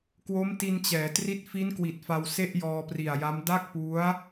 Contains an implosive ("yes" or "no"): no